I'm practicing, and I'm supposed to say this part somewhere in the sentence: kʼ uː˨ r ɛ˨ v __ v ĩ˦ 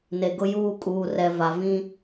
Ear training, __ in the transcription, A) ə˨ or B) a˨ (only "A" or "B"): B